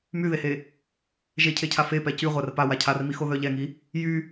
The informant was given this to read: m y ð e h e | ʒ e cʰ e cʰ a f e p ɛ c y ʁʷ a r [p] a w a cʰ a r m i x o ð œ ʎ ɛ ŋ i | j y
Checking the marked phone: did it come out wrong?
no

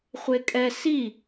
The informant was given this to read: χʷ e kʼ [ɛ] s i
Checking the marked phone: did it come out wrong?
no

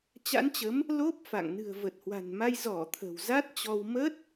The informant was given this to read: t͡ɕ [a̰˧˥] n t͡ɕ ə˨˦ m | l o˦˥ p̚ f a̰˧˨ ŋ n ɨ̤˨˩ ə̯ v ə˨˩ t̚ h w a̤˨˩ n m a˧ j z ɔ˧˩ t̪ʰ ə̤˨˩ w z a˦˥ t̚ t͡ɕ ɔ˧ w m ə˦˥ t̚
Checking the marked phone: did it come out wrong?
no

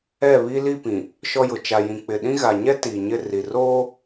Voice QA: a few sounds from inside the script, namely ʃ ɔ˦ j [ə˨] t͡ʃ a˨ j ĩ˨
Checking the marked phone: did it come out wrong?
yes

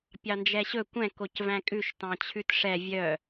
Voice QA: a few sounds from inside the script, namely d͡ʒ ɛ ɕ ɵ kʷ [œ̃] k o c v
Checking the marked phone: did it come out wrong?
yes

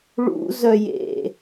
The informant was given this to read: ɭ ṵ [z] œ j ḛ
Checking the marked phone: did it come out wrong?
no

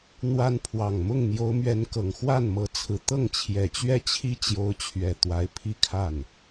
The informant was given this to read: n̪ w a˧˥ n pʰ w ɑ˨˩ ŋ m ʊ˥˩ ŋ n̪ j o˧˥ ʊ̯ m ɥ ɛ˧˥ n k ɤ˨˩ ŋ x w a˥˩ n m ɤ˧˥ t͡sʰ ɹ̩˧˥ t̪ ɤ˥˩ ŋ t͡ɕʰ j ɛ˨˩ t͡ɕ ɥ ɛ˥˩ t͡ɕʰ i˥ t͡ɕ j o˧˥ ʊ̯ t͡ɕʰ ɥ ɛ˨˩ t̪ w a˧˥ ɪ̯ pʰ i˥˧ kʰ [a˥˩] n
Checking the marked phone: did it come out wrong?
no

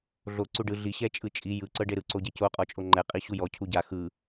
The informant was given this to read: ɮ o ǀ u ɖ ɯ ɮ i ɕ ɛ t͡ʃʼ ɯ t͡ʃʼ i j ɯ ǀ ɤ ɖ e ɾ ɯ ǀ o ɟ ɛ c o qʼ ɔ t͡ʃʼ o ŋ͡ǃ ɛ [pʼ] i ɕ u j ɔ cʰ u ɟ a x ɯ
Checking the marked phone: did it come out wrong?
yes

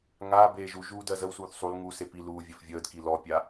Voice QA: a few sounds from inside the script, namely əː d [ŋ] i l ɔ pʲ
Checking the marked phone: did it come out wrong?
yes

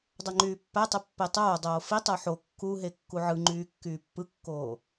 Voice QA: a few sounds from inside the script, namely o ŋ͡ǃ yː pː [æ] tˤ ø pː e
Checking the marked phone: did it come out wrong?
no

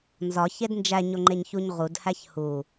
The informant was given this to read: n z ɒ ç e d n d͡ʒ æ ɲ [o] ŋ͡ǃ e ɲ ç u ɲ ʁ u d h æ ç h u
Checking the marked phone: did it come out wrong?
no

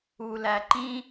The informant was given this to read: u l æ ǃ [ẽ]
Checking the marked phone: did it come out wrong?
yes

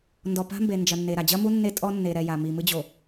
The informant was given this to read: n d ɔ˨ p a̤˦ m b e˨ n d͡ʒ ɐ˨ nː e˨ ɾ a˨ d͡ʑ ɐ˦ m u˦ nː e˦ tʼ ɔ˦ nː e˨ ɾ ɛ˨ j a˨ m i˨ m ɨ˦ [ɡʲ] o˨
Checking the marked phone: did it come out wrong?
yes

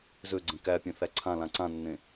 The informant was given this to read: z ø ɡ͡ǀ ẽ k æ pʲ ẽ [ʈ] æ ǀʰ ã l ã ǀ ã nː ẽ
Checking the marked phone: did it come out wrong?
yes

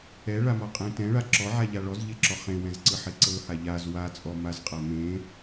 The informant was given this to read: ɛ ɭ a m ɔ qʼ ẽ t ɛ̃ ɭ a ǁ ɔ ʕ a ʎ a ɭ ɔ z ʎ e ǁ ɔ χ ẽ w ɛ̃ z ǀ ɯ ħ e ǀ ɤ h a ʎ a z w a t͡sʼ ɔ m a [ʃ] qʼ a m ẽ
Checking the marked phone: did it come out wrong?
yes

